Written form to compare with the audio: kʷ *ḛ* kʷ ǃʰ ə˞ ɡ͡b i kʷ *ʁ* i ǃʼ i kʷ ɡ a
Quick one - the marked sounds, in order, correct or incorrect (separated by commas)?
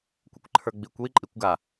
correct, incorrect